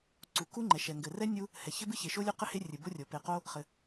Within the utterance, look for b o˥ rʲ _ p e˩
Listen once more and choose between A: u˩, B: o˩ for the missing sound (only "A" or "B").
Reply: B